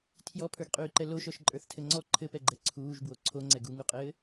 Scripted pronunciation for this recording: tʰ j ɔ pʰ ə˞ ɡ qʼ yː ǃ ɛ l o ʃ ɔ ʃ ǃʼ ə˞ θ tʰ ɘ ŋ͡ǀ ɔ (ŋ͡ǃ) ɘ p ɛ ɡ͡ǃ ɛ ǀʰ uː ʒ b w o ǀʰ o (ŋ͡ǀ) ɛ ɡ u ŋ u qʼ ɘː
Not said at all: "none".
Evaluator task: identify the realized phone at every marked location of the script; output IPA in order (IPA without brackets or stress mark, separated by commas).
ǃʰ, ŋ͡ǀ